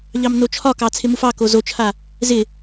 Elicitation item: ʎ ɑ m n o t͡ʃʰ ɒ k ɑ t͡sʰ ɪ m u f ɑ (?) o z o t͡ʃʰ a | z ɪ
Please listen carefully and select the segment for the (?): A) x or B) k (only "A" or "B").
B